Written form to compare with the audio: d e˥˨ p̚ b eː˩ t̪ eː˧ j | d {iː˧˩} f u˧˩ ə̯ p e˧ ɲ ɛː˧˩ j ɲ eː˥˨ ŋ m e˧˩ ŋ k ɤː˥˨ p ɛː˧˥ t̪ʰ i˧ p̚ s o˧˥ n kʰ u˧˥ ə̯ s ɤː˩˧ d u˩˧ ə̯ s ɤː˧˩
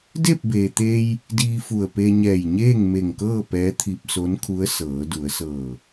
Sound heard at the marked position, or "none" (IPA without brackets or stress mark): iː˧